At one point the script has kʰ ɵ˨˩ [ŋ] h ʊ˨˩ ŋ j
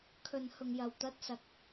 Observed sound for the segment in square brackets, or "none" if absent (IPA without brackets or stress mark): n